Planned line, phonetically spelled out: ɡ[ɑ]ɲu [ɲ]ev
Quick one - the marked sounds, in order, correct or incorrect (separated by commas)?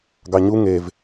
correct, incorrect